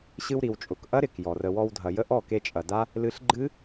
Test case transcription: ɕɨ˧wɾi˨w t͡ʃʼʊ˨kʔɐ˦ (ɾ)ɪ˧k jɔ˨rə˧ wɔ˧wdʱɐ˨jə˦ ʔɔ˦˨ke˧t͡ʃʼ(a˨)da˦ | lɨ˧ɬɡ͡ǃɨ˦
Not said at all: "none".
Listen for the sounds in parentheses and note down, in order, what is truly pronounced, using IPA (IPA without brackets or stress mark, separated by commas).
ɾ, ɐ˨